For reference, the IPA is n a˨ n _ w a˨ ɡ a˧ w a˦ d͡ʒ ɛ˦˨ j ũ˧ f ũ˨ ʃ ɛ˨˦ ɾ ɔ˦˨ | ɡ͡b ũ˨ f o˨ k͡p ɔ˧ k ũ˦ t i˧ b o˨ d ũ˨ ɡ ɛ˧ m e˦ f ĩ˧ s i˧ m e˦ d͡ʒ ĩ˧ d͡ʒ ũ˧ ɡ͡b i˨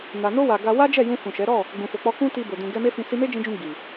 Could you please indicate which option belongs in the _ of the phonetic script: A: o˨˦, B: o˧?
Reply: B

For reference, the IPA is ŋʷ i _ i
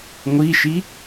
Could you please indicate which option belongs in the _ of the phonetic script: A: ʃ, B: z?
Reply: A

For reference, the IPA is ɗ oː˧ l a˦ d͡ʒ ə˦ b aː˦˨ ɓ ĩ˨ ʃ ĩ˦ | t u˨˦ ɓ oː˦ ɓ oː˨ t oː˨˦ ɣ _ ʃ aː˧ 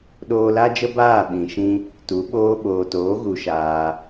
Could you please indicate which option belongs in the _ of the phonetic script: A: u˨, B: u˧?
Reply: A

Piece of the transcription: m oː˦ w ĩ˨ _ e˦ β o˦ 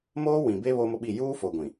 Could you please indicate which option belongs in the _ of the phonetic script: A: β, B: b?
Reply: B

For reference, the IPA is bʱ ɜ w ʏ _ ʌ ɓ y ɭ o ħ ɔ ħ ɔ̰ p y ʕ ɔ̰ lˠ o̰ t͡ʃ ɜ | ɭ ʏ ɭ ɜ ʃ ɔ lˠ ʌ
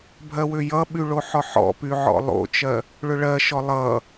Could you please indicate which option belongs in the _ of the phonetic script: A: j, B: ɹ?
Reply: A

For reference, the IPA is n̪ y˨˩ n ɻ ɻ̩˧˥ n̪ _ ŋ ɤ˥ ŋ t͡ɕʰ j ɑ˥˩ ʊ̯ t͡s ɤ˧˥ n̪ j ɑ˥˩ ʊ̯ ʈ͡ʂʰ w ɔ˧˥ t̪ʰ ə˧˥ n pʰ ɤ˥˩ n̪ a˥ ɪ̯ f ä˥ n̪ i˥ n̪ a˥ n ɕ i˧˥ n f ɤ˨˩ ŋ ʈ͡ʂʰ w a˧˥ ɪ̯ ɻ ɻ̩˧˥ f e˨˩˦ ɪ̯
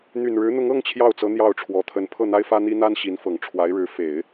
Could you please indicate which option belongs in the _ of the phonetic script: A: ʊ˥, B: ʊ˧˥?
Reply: B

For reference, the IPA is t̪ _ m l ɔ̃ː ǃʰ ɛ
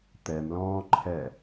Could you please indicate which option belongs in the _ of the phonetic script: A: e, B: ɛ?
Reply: B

